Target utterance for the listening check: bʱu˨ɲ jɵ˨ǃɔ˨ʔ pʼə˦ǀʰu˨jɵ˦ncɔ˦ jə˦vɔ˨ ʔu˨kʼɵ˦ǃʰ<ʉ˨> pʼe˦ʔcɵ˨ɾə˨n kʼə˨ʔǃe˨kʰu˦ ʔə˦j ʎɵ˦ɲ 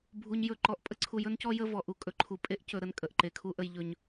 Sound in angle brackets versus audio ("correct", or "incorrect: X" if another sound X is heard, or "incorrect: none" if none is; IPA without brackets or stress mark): incorrect: u˨